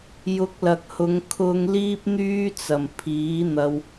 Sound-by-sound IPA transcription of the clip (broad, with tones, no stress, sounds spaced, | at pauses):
j ʊ˨˥ k̚ l ɐ˨ k̚ h ʊ˨˧ ŋ kʰ ʊ˧ ŋ l iː˥ p̚ n̪ yː˥ t͡s ɐ˨˩ m pʰ iː˨˥ n̪ ɐ˧ w